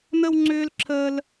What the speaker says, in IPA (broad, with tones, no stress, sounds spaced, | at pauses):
n̪ ə˥ w ŋ͡ǀ ʏː˥ l ǁʰ əː˥ l